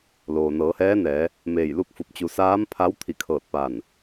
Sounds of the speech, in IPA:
loː˩nɤː˩˧hɛː˧˥nɛː˩˧ | meː˧˩jlu˥˨k̚fu˧˩p̚ t͡ɕu˩˧saː˧˥m pʰa˧˥w t̪ʰi˧˩kʰɤː˧˩t̚paː˧˩n

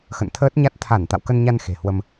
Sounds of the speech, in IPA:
xə̰˧˨nt̪ʰəː˦˥t̚ɲa˦˥t̚ t̪ʰa˧˩n t̪a̰˧˨wkə˧nɲa˧n xe̤˨˩hwə˧m

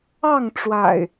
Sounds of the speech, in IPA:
ɑ˥˨ŋʈ͡ʂwa̰˨˩ɪ̯

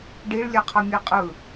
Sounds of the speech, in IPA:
ɖiɭlʲɛqʰʌmʲe qʼɯ

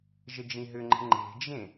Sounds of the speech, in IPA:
ʒəd͡ʒĩɦʏŋ͡ǃə̤ ŋ͡ǃe̤d͡ʒẽ

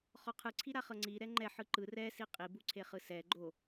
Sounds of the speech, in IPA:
χɔqʰɯ ǀʰiɾaχɤŋ͡ǀi ɾɛŋ͡ǃɛ ħɯǃɯ rɛ siqʼi buǀʰeχɯsɛ ɡ͡ǃo

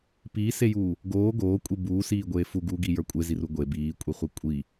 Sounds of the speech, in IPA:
piːsejuː | ɡoː ɡoːkʷʼi buːsiːɡʷeː fuɡuːɡijə˞ kʷʼeziru ɡʷe biːkʷʼiχʷi kʷʼi

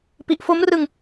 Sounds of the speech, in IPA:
pi˨˩ʔfo˦˥mrɯ˧ŋ

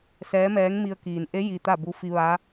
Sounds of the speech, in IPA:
sɛː˧˥mɛː˧˥ŋmi˧ə̯ kiː˩nʔe˧˥ ji˧t̪a˥˨bu˧ fi˧ ʋa˧˥

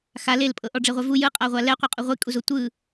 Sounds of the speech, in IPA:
xa lelpʼɤʔɔ ɖ͡ʐeʁʷɛvu jɯqʼaʁʷa lɛqʷɤqʼu ʁʷikʼuzo tʷɯ

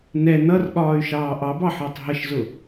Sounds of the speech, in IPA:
nɛ nʌrɠɒːy̯ʃɑː ʔɑbɑħəːtˤ ɦəʃzʊ

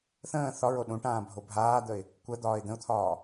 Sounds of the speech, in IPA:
θə̃ː θɒɹo ɗũʈãːbʱo bʱaːd̪əɪ̯ | kʷəd̪ɒːɪ̯ d̪ə̃ʊ̯t̪ʰɒː

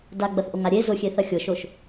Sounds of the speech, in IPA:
daɡ͡bɐθʔoŋa ɾʲe zʊxʲeθɐ xʲʊʃoʃ

